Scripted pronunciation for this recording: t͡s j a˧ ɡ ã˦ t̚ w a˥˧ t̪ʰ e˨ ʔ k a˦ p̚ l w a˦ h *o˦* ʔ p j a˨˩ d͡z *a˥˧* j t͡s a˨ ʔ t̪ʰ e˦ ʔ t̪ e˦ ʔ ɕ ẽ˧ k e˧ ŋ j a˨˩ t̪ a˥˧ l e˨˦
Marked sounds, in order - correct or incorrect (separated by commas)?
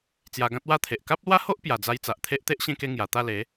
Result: correct, incorrect